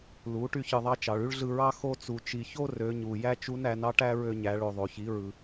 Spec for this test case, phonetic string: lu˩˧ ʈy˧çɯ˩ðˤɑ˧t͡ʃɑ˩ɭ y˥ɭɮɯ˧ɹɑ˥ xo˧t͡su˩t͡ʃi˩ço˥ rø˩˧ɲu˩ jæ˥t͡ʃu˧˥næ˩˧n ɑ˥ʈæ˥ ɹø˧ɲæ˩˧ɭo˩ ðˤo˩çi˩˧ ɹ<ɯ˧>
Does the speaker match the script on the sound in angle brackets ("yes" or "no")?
no